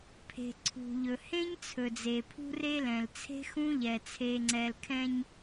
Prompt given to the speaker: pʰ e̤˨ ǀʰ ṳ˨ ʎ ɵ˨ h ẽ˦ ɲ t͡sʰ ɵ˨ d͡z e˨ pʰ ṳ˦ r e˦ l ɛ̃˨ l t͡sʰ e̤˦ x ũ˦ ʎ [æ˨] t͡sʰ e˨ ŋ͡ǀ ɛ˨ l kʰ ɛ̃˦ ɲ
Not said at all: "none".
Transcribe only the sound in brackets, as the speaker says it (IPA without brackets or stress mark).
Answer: ɛ˨